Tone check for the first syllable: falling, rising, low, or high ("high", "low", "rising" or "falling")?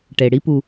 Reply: low